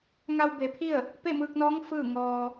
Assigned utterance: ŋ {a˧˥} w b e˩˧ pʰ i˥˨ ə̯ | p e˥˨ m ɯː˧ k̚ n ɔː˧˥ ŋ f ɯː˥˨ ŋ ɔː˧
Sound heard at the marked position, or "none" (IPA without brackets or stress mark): a˧